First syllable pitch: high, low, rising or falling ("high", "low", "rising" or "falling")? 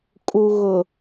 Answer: low